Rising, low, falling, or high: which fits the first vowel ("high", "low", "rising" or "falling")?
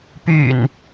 low